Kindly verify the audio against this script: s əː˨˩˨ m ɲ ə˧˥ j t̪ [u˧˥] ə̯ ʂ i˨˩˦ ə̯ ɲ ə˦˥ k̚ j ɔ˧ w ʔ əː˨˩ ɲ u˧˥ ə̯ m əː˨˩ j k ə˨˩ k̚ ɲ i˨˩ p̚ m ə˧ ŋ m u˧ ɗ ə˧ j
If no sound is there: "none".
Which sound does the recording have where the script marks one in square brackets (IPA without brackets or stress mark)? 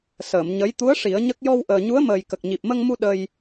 u˧˥